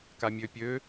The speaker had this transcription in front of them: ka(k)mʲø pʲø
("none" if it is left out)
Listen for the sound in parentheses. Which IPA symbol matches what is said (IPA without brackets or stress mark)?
none